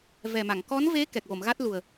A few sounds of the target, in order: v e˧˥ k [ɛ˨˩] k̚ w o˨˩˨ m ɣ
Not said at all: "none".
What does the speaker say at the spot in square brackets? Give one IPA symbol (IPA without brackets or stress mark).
ɛ˨˩